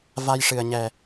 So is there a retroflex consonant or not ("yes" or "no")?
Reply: yes